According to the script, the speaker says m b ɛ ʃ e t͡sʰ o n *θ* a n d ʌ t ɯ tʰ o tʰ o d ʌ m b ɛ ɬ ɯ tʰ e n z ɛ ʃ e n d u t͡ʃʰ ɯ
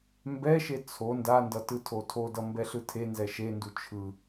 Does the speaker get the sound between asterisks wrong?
yes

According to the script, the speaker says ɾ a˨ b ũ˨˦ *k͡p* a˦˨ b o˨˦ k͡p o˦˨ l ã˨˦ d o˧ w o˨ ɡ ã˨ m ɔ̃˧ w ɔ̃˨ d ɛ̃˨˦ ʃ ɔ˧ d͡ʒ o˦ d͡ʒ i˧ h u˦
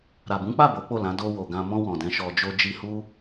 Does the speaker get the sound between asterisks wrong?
no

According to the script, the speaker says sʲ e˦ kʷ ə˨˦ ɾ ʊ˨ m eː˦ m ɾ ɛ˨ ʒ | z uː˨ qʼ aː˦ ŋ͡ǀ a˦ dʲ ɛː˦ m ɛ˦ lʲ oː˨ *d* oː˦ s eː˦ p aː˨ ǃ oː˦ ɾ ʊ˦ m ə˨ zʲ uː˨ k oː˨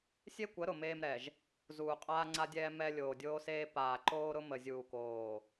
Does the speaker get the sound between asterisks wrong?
yes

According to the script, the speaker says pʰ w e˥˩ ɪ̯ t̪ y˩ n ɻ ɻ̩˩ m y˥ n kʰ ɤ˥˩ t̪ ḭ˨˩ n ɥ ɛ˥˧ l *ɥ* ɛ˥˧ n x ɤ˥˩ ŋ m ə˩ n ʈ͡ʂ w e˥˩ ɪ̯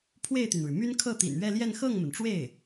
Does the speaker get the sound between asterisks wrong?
yes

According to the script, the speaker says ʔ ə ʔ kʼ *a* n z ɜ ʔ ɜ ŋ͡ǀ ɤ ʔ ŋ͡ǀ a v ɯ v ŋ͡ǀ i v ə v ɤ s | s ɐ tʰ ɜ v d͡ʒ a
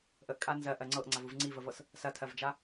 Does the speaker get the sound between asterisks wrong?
no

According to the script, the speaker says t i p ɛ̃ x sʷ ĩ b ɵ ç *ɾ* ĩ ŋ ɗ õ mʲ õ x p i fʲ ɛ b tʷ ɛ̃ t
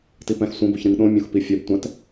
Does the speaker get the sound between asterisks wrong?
no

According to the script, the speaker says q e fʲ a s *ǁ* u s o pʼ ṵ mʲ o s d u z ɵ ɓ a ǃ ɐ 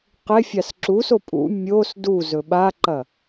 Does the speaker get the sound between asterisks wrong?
no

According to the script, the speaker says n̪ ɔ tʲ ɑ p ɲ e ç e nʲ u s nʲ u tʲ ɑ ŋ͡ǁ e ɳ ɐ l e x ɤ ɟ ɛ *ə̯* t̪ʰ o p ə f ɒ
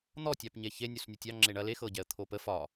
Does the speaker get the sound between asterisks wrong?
no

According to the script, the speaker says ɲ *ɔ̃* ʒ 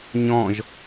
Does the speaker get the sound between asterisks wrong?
no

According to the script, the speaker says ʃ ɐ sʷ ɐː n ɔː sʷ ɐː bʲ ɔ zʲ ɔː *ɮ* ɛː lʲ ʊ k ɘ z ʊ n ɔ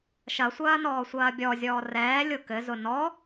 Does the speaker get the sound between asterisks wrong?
yes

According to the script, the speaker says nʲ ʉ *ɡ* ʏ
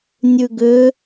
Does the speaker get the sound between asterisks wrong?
no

